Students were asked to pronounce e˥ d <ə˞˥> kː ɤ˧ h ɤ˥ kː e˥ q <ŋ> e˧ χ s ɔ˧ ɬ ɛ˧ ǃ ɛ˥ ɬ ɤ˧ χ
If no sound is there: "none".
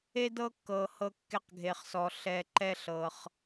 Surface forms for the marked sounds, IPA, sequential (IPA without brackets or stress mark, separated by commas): ɤ˥, ɡʱ